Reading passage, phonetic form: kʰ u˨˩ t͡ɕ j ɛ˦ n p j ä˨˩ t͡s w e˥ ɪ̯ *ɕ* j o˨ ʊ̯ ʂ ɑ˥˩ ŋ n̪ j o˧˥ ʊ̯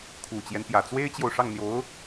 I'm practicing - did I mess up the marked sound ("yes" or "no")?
yes